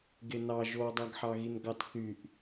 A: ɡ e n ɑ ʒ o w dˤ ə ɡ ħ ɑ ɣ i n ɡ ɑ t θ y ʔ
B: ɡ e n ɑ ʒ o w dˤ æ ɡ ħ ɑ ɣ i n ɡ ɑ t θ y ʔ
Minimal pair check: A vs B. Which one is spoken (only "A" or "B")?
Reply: B